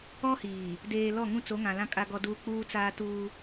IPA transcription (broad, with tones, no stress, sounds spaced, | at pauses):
ɔ˦ h iː˨ | d eː˨ l ɔ˦˨ ŋ ũ˦ t͡s o˨˦ ŋ ã˨ l ã˦ kʼ a˦ ɡ ɔ˦ d uː˦ k͡p uː˦ t͡s aː˦ t uː˦